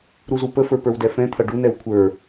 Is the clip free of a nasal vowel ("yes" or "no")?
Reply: no